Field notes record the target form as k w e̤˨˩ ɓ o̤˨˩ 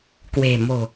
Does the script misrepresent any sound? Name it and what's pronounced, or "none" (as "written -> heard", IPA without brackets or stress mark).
ɓ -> m